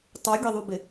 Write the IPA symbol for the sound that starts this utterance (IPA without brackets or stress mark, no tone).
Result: tˤ